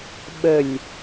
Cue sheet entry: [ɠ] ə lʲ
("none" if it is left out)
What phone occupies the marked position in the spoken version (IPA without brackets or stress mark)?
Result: ɓ